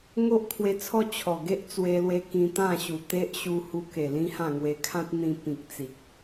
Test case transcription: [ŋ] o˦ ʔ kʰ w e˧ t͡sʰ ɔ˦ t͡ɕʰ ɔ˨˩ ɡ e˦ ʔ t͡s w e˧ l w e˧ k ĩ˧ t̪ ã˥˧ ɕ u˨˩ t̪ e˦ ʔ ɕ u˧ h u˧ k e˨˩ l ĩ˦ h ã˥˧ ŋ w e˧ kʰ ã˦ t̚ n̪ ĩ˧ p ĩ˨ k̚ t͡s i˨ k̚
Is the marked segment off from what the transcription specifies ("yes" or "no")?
no